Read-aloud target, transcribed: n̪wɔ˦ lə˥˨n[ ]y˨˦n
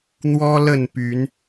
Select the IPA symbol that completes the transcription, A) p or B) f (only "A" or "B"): A